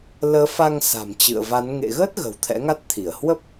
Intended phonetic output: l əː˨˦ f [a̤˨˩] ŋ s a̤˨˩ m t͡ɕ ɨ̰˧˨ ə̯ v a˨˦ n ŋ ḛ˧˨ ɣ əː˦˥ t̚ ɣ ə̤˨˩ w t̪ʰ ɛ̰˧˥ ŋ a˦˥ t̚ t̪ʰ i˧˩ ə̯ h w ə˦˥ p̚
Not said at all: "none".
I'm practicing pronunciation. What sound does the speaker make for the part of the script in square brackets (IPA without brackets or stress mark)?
a˧